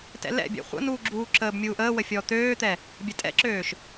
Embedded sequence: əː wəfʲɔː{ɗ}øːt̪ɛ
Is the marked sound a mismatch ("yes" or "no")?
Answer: yes